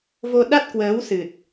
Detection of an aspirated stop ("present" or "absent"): absent